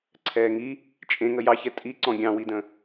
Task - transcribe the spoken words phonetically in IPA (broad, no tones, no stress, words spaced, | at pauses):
ǀʰɛːŋi | t͡ʃʼẽŋə jɑçɛ tʼi ǀɔ̃ɡʲɑ̃widə̃